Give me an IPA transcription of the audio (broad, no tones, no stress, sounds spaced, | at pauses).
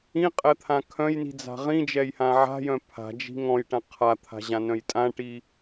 ĩ qʼ ɛ t̪ʰ ã kʰ œ̃ j n i̤ d͡z a̤ ʁ ĩ d͡ʒ ɛ j h ã ʕ a̤ j œ̃ pʰ a̤ d͡ʒ i̤ ŋ ɔ̃ j ʈ ã qʰ a t̪ʰ a̤ ʑ ã n œ̃ j tʼ ã ʈ i